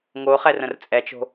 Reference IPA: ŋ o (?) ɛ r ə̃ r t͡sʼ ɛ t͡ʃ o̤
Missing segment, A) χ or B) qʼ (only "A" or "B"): A